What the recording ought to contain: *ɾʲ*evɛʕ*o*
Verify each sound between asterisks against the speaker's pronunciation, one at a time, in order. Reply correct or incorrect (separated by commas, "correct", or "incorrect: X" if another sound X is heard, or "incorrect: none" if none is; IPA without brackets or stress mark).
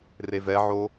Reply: incorrect: r, correct